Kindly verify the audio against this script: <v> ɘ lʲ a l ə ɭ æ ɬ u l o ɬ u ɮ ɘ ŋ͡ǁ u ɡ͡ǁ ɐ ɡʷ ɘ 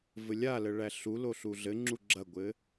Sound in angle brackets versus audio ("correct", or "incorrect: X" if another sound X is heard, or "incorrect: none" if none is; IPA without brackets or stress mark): correct